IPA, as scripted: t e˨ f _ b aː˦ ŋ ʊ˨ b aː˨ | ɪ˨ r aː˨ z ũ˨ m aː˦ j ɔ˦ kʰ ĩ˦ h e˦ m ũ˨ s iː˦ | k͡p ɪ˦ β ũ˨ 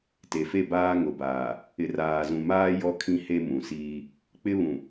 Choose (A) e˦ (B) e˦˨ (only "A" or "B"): B